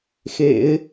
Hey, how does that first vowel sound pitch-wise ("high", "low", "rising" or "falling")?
low